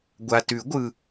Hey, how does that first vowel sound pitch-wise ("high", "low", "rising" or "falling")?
low